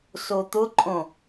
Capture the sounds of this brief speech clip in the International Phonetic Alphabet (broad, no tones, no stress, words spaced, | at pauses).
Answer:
sot̪ʊǃʼõ